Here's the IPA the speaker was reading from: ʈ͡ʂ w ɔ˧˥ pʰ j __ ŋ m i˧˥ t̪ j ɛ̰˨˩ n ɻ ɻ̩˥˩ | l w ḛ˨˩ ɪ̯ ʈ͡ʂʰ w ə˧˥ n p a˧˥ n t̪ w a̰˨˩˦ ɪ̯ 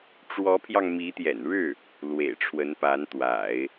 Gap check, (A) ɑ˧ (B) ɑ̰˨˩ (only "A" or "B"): A